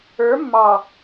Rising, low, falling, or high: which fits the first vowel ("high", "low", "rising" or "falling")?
rising